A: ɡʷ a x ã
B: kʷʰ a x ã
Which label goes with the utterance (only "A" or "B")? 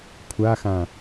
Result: B